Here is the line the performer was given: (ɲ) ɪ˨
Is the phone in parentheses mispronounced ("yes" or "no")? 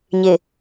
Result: no